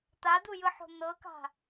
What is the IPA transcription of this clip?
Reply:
t̪ad̪ujɯħo̤ n̪ɤka̤

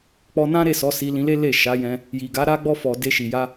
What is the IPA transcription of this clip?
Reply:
k͡pɔ˧nã˦ɾe˦˨sɔ˨˦ si˧lĩ˧le˦le˦˨ ʃa˨˦jɛ̃˧ | ji˨ɡa˨˦ ɾa˧ɡ͡bɔ˧fɔ˨ de˧ʃi˨ja˧

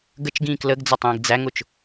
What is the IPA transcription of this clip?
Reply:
ɡət͡ʃɡĩːk ləɡd͡zʌtˤĩːɡ d͡zæŋʊt͡ʃ

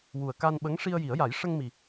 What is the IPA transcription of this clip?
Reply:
wu˨˩ə̯ka˧nɓə˧˥ŋ ʂi˧ə̯ji˨˩˦ə̯ja˨˩˦j ʂə˧ŋmi˨˩

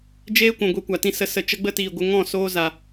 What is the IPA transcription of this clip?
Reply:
d͡ʒeː˦kʷũ˨ ɡʷe˦kʷa˨tĩ˦ sə˧ sə˧ t͡ʃə˦ɡ͡bə˦tiː˨ɡʷə˧ ŋɔ̃˦˨ soː˦za˨

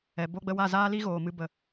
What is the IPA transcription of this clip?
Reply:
ɛ˨bo˧ɡ͡bə˧wa˦˨ zaː˦li˦ɣoː˨ mɨ˨ bə˨

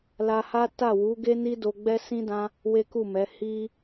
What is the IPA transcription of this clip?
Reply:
la˧ha˦ ta˦˨wu˨˦ɡe˦ni˦ do˧ɡ͡bɛ˦sĩ˦dã˦ | we˦ku˦˨mɛ˨˦ hi˦

